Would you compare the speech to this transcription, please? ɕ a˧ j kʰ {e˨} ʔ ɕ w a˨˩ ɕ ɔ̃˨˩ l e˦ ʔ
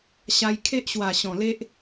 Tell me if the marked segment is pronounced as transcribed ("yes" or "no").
no